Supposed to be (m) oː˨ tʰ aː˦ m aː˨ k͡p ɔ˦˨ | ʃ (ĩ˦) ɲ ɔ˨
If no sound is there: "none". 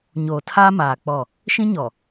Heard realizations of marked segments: ɲ, ĩ˦

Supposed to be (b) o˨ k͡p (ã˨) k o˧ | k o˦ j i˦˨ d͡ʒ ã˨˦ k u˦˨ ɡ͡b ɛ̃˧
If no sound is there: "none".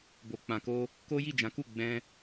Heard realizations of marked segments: b, ã˨

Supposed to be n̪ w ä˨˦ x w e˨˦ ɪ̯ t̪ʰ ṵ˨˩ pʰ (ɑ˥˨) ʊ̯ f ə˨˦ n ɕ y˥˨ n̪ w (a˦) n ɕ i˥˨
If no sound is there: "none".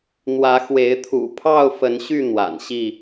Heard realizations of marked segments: ɑ˥˨, a̰˨˩

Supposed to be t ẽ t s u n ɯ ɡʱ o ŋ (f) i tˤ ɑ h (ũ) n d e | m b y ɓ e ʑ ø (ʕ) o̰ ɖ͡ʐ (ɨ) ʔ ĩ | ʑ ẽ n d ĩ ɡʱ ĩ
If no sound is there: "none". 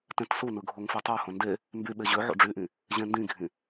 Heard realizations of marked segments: f, õ, ʕ, y

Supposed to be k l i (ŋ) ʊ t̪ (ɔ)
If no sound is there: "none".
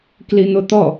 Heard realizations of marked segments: n̪, ɔ

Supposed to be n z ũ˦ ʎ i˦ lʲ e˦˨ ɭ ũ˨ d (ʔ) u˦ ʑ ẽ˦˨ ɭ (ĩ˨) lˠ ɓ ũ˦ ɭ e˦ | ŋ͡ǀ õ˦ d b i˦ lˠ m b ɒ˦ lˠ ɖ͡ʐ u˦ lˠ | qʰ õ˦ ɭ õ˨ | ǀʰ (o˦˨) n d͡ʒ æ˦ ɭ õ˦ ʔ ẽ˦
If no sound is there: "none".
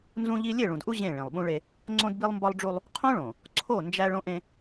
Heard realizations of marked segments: ʔ, ĩ˨, o˦˨

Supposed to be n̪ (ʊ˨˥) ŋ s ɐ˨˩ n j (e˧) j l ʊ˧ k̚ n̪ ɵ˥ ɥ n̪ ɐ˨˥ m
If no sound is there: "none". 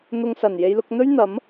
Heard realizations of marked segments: ʊ˧, e˧

